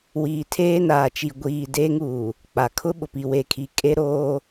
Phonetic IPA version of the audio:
w iː˨ tʰ eː˦ n aː˨ t͡ʃ i˨ ɡʷ iː˦ d eː˦ ŋ uː˨ | k͡p a˨ kʰ ʊ˦ ɓ ʊ˨ p i˨ w e˨ kʰ i˨ kʼ e˦ ɾ oː˦

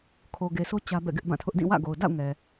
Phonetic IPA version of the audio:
kʰ o˨ ɡ e˨ s o˦ t͡ɕ ä˦ b ɛ̰˦˨ ɡ ɪ˦ ʔ b ã˦˨ tʰ ʊ˦ ʔ d ĩ˦˨ w ä̰˦˨ ɡ o˨ ʊ̯ d a̰˦˨ ʊ̯ ŋ ɛ˨

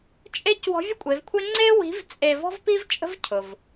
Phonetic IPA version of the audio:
t͡ʃʼ e˧˥ c w ɔ̤˧˥ vʲ ʊ˥ kʷʼ e˩˧ v kʷʰ e˥ ŋ͡ǀ e˥ w i̤˧˥ v t͡sʼ e˧ v ɔ̤˥ v p i˥ v t͡ʃʼ ə̤˥ v cʰ ʊ˩ v

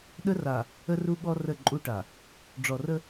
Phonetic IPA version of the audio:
ɗ ə˦ r a˨ | ə˦ r u˦ ɠ ɔ˦ r ə˦˨ ǃʼ u˦ ʈ a˨ | ɖ͡ʐ ɔ˨ r ə˦

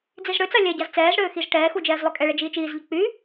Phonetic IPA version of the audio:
d͡z i z ɽ ø t͡s a lʲ ɛ ɟ a z t͡s ɛː z ɽ øː x i z ʈ ɛː x u d͡ʒ ɛː z lˠ ø kʼ ɛ ɭ ɛ d͡ʒ iː t͡ʃ iː z ʎ ə k͡p y

